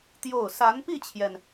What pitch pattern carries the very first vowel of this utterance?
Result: falling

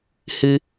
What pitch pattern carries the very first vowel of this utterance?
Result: high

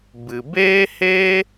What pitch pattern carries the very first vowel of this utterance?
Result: low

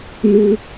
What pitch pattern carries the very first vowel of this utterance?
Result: high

